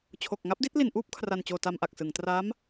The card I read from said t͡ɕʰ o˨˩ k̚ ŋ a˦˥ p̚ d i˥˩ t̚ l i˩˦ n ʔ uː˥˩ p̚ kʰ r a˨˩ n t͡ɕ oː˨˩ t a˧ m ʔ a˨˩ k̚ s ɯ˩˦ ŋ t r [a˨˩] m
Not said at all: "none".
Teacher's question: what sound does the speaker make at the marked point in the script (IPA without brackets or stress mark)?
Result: a˦˥